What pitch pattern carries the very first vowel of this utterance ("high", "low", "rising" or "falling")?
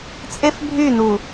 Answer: high